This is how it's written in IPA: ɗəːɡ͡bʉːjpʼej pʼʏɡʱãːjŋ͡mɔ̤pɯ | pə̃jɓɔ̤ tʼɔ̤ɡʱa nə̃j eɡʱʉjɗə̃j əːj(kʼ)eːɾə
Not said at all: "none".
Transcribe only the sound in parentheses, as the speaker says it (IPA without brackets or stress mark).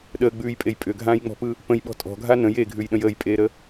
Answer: pʼ